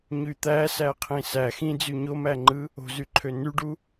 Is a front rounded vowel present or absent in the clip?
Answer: present